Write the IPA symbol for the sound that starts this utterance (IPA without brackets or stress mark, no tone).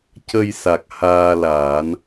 c